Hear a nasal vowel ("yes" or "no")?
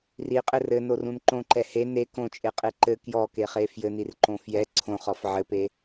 yes